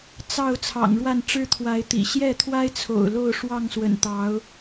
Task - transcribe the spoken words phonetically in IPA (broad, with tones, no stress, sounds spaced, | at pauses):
t͡s ɑ˥˨ ʊ̯ t͡sʰ ɑ̰˨˩ ŋ ɻ w a˥˨ n ʈ͡ʂ ɻ̩˦ t̪ʰ w a˨˦ ɪ̯ t̪ ḭ˨˩ ɕ j ɛ˥˨ t̪ʰ w a˦ ɪ̯ t͡sʰ o̰˨˩ ʊ̯ l o˥˨ ʊ̯ ʂ w ɑ˥˨ ŋ s w ə̰˨˩ n t̪ ɑ˨˦ ʊ̯